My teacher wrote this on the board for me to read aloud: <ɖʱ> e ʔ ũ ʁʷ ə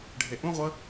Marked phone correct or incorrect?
correct